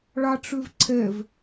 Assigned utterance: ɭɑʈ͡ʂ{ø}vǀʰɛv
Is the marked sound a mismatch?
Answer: no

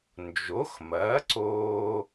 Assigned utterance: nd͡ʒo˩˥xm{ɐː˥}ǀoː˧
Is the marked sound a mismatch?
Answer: yes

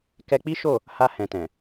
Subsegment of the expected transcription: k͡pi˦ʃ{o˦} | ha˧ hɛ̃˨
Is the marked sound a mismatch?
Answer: yes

